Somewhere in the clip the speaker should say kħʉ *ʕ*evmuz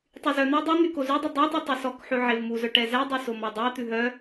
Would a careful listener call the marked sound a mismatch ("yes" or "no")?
no